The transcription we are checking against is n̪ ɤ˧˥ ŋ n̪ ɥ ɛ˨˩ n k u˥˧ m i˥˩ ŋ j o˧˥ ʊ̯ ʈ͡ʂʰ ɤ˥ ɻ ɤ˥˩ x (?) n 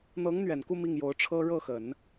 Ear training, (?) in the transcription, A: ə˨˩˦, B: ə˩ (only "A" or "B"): A